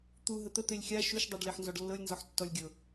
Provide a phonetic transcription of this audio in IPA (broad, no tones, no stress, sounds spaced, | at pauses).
t̪ u ɦ ə t̪ ə t̪ e lʲ xʲ a ʃ u ʃ dˤ ɛ ɖ l e ħ n z ɔ ɖ lː ɤ lʲ n z ɔ ħ tː ɔ lʲ ɡʲ ɤ